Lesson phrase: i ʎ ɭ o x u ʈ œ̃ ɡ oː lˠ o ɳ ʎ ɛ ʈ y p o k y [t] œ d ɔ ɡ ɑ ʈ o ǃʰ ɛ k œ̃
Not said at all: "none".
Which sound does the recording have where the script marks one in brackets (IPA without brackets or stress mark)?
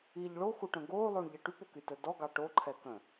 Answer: t